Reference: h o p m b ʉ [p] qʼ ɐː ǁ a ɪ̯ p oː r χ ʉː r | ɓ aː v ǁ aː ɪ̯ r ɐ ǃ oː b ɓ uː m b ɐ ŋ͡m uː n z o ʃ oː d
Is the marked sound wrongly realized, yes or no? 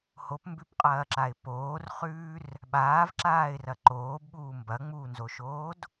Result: no